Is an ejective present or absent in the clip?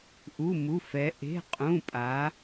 present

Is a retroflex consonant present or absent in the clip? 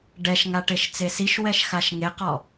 present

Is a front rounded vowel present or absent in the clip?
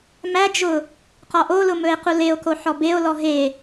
absent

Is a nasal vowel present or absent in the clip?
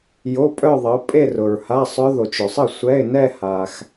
absent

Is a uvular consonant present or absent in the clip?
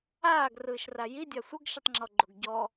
absent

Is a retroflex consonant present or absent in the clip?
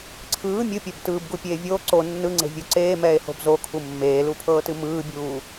absent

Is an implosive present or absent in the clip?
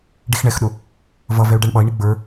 present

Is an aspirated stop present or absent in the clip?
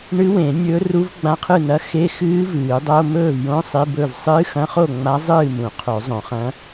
present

